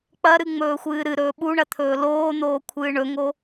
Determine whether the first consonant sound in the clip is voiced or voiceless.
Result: voiceless